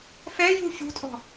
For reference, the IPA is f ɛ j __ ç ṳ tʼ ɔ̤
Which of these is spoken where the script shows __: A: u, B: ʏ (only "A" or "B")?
A